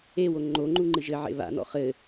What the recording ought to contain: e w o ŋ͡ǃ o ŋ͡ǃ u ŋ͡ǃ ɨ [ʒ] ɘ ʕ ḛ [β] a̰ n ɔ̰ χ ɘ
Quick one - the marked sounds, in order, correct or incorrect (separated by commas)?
correct, correct